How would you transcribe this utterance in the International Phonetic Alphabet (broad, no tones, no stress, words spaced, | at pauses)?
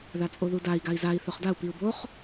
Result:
ðat͡sʼoðudai̯ ɡai̯zai̯ θɵχdau̯ piu̯boχ